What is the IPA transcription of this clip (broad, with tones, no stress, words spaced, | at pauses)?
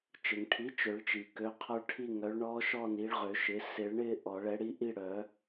t͡ʃɪ˩ŋʈʰi˩˥ t͡ʃø˨˩˦ɭt͡ʃi˩ kø˩˥qʰɔ˦˥ɭʈʰi˥˧ ŋœ˩˥ɭɳɔ˦˥ʃɔ˥˧ni˩˥ɭ ʁø˨˩˦ʃɪ˩˥ sɪ˨˩˦ɭɳɪ˥˧ ʔɔ˨˩˦ɭɛ˩˥ɽi˦˥ʔi˥˧ ɽœ˨˩˦